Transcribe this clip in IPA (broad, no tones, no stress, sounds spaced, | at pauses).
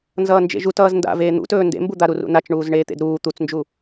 n z ʌː n d͡ʒ ḛ ʒ u t ʌː z n d a̰ v eː n̪ ṵ t ɵː n d ḛ m b u d̪ a ɾ u r ṵ n a t͡ʃ ɳ uː z ɳ eː t̪ ḛ d ɾ uː t̪ u t͡s n d͡ʒ u